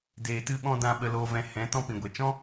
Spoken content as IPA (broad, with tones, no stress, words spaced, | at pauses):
deː˧tɨ˦ɓɔ̃˦ dã˧ ɓə˨loː˨vɛ̃˨ hɛ̃˨˦ tɔ̃˧pĩ˨ɡʷɛ˨t͡ʃɔ̃˦